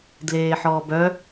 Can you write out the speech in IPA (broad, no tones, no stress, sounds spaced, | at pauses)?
d l eː ħ ɔː b œ